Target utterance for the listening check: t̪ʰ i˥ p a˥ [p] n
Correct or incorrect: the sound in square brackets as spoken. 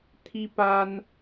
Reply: incorrect: none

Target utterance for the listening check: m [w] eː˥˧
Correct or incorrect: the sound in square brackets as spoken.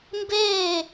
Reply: incorrect: b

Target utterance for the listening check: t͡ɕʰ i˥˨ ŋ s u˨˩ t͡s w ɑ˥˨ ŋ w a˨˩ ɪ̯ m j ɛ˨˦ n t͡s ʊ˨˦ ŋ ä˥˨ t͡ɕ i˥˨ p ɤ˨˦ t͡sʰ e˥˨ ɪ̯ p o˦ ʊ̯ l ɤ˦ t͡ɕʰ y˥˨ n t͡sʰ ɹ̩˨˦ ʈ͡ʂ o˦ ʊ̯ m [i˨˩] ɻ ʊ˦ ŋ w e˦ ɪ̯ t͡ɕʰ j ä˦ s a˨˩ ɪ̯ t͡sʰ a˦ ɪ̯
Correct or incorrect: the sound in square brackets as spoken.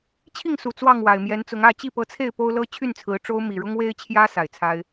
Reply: correct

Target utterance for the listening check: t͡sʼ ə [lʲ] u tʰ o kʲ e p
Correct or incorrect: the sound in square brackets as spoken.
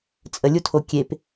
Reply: correct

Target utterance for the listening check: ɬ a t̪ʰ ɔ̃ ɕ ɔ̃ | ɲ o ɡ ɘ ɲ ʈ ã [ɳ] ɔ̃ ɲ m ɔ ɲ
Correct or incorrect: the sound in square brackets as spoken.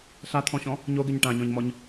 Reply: incorrect: ɲ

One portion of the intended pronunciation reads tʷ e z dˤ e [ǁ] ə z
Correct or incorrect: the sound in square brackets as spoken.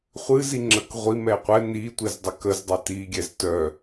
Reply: incorrect: k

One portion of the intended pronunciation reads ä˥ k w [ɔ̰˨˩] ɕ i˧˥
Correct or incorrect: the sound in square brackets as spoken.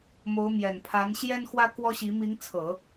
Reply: incorrect: ɔ˥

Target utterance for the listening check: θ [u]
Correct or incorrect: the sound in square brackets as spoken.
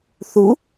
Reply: correct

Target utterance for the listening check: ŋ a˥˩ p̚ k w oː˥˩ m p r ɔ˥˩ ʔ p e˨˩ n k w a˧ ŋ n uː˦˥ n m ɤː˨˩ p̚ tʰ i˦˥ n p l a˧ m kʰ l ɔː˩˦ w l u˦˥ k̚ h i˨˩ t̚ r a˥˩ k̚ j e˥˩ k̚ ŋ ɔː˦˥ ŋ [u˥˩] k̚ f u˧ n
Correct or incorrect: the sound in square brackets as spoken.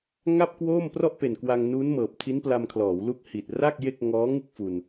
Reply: incorrect: ɯ˥˩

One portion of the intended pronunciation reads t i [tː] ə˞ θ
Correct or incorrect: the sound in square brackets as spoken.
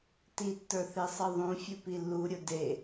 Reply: correct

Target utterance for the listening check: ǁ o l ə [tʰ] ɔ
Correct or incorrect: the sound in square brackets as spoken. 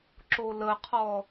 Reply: incorrect: qʰ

